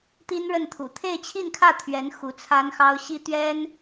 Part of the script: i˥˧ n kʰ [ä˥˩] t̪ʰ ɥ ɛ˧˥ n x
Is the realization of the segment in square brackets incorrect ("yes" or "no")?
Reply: no